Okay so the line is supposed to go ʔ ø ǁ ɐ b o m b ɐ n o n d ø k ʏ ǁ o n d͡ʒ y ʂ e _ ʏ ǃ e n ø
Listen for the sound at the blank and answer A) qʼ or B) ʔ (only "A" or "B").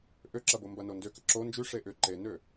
B